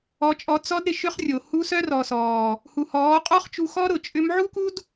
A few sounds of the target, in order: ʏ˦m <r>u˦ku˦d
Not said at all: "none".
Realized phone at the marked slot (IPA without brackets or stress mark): ʕ